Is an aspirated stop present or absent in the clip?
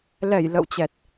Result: absent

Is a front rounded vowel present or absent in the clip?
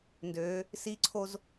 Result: present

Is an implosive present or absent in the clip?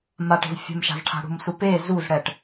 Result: absent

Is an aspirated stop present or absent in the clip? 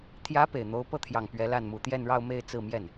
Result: present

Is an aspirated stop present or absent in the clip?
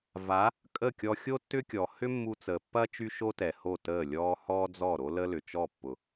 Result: absent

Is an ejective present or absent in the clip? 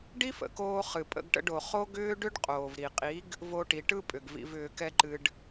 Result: present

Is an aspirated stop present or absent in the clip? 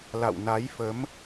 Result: absent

